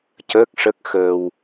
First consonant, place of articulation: palatal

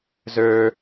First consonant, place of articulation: alveolar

